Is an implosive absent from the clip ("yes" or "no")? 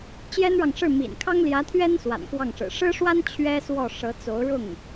yes